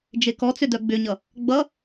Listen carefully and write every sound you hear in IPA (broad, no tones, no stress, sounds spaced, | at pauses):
d͡ʒ e k ɔ t͡s ʏ d œ ɡ͡b ʏ ɲ ʌ | ɡ͡b ʌ